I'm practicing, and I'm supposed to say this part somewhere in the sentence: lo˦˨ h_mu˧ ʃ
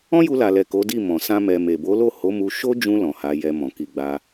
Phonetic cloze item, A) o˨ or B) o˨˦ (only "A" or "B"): B